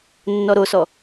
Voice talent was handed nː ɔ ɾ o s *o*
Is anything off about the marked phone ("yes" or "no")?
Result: yes